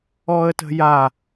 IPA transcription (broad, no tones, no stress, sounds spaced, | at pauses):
ɔ ə̯ t ə̤ j a